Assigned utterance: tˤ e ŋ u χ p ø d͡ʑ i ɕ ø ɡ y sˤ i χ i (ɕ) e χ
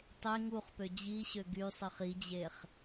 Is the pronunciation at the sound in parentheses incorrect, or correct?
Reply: incorrect